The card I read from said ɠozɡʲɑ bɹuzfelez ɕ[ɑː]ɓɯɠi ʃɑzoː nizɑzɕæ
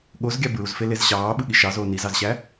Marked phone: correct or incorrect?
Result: correct